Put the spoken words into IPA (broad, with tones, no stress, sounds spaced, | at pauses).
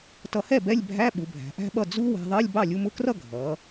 t ʌ˧ h ɛ˥˩ b ɛ˧˥˧ lʲ bʱ æ˧˥˧ ɓ u˩˧ bʱ æ̤˩˧ ʔ æ̤˦˥ ɓ ʌ˥˩ d͡z u˦˥ w æ̤˧ ðˤ ɜ˧˥˧ lʲ b ɑ˥˩ lʲ u˧ m ʊ˦˥ k r ʌ˥˧ ɡʱ ʌ˩˧